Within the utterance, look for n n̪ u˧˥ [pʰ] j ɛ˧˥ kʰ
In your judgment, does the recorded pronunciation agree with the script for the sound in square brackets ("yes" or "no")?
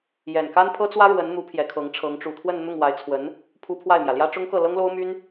yes